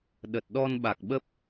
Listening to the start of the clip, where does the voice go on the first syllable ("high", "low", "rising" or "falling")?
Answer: low